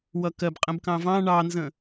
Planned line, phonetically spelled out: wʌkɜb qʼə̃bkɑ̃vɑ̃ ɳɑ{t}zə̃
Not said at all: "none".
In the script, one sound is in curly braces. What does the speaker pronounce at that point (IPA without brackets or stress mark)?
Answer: n